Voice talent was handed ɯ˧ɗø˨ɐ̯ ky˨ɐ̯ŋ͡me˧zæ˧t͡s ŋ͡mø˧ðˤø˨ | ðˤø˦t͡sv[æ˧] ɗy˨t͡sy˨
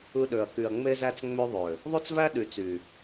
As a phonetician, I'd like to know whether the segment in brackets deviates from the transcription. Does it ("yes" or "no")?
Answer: yes